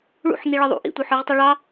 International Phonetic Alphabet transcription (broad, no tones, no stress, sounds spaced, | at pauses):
ɭ ṵ ħ n i ɭ ɘ ðˤ ṵ ʔ ḭ tʷ ə˞ ħ ə˞ ʁ tˤ ɘ ɭ ɑ